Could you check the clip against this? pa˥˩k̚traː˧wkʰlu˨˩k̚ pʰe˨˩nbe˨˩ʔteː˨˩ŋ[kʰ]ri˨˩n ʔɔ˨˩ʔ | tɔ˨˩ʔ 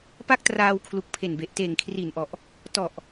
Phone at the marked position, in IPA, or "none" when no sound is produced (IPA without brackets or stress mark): kʰ